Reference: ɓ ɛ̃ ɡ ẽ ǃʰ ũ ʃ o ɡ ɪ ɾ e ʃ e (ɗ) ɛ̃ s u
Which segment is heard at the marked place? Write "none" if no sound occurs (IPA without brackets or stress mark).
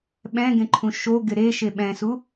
ɓ